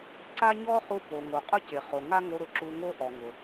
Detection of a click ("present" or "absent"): present